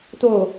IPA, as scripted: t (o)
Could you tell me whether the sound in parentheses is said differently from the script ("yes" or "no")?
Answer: no